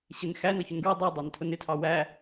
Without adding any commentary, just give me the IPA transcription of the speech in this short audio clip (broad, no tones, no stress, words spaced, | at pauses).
ɕɪn xæn ʌçʊnɡɹɪ dˤu dˤɑntʰʊnɪtʰɑ wæ